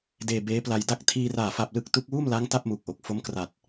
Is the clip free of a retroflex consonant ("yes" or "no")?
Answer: yes